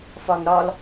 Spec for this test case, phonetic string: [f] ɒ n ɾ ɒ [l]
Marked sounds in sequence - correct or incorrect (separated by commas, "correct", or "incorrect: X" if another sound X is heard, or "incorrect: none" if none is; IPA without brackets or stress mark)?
correct, correct